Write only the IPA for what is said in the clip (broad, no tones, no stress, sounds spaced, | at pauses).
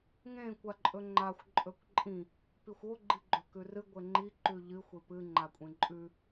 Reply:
ŋ ẽ kʷ a ǃʼ ɵ ŋ͡ǃ a xʷ ǃʼ ɵ kʷ ǃʼ ĩ | p i xʷ o ɡ͡ǃ i ɡ͡ǃ ɵ k ʉ r ɨ ɡʷ e ŋ͡ǃ i ǃ ʉ ʎ ɨ xʷ e p ɨ ŋ͡ǃ a kʷʼ ẽ ǃʼ ʉ